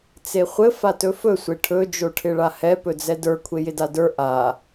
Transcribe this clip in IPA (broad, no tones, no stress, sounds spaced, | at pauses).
t͡s e χʷ ɘ f a t ɵ f ɵ sʷ e ʈʰ ɵ d͡ʒ o ʈʰ ɪ ɭ a h ɛ p ɵ d͡z ɛ d ə˞ kʷʰ e j ɪ d a d ə˞ ʔ a